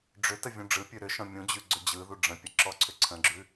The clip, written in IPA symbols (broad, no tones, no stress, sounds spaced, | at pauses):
ɖ͡ʐ ʏ t ə vʲ ũ ɖ͡ʐ ɯ pʲ ʉ ɾ ʏ ʃ ɔ̃ mʲ ũ d͡ʑ ʉ ɡ͡ǀ ʏ d͡ʑ ɯ ð u ɖ͡ʐ ə̃ pʲ ə ǁ ɔ ǀʰ ʏ ǀʰ ə̃ ɡ͡ǁ ʉ